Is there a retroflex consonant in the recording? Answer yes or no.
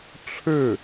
yes